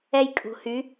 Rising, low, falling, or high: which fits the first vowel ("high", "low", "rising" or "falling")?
high